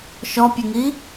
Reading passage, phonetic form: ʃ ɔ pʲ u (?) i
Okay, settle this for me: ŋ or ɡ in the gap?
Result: ŋ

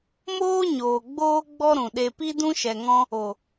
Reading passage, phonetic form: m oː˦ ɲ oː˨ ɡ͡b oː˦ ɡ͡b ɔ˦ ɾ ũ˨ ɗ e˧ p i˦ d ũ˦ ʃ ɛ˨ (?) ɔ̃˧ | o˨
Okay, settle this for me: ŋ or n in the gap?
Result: ŋ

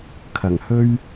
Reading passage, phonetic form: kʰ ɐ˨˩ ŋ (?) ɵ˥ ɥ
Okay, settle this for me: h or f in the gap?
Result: h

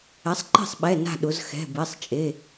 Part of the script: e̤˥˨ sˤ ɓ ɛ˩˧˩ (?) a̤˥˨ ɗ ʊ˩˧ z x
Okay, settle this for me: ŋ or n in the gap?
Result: n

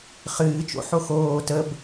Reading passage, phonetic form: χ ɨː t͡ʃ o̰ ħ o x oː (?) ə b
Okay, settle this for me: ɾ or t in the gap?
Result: t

